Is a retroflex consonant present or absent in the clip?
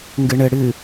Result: present